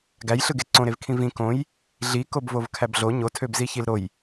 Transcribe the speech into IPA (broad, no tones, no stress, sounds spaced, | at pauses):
ɡ æ j ɬ ɯ ɡ e ǀ õ ɾ e v kʰ ĩ v ĩ k õ j | ɮ i k o b v o v kʰ æ b ɮ o ɲ o tʰ ø b z i ç i l ɾ o j